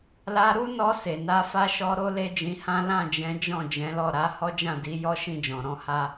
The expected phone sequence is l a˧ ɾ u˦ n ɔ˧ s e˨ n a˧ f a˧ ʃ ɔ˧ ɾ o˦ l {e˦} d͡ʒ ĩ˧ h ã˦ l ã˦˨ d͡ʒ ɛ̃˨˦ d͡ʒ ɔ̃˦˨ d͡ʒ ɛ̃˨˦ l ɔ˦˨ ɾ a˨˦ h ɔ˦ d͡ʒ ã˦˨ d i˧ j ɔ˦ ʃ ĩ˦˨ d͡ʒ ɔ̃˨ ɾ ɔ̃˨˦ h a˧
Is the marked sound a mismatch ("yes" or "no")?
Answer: no